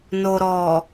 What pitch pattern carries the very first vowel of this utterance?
low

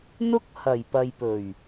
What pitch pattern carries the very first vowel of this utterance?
high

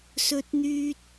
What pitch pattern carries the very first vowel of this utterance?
high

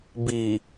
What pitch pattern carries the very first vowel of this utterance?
low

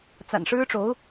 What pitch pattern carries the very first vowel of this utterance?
low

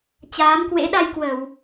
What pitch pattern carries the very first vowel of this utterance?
rising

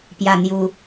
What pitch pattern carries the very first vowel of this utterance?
low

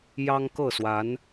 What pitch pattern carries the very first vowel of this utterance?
high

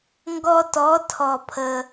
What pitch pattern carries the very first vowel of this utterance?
high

